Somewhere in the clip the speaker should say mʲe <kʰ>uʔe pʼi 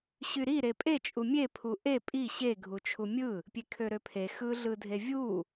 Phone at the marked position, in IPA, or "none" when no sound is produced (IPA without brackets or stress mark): pʰ